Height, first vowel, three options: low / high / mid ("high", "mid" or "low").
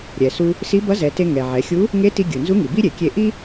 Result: mid